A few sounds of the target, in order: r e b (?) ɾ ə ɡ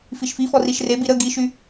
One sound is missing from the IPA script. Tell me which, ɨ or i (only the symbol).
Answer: i